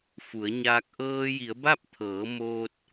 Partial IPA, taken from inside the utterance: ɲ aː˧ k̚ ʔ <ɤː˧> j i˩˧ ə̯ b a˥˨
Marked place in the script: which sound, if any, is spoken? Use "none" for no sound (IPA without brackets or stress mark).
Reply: ɤː˧